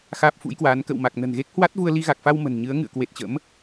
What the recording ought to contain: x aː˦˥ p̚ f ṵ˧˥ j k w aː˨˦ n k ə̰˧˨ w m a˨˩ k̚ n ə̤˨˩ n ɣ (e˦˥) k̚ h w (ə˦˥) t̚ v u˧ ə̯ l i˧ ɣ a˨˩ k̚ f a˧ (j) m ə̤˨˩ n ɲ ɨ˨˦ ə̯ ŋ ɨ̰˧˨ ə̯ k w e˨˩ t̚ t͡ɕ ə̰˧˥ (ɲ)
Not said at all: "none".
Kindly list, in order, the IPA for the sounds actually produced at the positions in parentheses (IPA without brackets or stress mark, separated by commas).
e˦˥, a˦˥, w, m